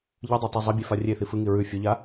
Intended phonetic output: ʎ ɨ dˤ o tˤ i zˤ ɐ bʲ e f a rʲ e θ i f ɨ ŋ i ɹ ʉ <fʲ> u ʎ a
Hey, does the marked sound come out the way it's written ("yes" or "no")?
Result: yes